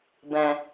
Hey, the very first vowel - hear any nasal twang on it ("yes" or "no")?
yes